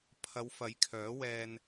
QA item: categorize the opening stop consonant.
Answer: aspirated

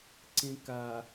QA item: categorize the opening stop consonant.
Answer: click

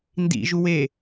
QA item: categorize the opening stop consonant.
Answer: plain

